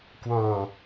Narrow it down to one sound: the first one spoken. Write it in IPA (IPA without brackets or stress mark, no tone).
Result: k